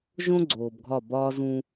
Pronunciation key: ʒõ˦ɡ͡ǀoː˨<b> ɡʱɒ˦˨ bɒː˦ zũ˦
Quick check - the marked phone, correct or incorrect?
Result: correct